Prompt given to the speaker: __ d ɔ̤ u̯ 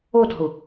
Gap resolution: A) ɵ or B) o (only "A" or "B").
B